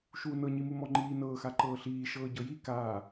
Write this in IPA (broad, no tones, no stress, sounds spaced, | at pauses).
ʃ uː n ɤ ɲ i m u m ɔ ŋ͡ǃ iː n ɤː x a ǃ ɤː ɬ iː ʃ ɤː ɟ ɤ j i k aː